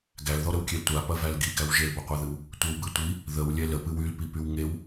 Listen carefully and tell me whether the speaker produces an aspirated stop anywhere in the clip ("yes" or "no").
no